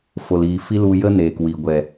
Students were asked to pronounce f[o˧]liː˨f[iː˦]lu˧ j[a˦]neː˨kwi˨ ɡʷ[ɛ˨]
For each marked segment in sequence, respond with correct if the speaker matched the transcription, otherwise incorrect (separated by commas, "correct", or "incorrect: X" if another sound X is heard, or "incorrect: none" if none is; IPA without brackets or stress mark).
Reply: incorrect: o˨, incorrect: i˦, incorrect: ə˦, correct